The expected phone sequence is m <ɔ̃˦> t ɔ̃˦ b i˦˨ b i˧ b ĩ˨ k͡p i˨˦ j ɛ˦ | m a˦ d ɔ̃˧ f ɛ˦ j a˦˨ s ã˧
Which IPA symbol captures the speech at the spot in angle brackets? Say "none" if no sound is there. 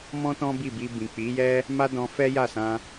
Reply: ɔ̃˦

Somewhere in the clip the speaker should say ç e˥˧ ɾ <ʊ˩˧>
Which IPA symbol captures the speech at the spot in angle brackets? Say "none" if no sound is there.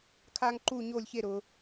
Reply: ʊ˩˧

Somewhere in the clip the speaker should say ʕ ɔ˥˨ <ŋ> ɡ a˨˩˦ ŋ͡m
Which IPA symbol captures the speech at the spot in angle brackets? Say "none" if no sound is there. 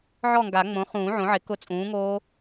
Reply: ŋ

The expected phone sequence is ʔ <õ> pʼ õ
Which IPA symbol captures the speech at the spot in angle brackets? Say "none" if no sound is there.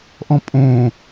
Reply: ɔ̃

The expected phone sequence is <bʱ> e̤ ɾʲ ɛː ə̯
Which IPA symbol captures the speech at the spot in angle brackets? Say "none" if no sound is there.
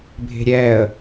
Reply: bʱ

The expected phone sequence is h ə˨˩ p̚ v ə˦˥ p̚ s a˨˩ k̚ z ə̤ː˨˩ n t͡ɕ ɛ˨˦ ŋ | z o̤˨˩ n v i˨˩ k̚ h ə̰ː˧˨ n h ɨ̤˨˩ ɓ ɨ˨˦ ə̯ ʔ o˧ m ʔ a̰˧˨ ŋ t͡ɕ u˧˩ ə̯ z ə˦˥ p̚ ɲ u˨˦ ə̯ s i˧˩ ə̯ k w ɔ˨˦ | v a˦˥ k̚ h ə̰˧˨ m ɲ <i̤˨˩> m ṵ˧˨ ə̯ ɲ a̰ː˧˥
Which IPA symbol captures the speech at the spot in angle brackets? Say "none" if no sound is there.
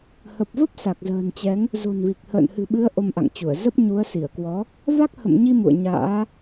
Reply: i˧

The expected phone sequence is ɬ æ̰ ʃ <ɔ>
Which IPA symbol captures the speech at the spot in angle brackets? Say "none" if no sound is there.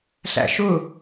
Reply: ʊ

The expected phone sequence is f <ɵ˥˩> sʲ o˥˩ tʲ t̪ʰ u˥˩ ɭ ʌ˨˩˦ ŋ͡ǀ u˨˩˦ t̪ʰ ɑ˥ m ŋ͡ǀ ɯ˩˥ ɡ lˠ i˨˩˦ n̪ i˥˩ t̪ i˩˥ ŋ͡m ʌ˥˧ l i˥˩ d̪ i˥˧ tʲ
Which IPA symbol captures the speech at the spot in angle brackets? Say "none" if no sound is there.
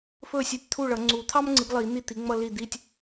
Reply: ɵ˥˩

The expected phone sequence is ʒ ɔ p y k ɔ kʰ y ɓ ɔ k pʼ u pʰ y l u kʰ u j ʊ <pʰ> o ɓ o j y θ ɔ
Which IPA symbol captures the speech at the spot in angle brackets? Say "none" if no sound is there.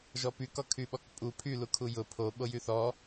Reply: pʰ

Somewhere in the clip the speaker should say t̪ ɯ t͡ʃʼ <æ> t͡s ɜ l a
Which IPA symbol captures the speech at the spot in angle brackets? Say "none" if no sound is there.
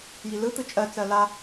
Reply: ɜ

